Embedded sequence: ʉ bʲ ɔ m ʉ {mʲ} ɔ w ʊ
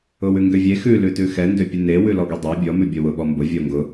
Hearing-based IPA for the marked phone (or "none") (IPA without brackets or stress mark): bʲ